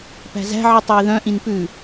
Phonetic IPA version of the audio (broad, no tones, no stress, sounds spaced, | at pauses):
p æ̤ z æ̤ ʕ i tˤ o i̯ ð œ̃ ʔ ĩ n p ʉ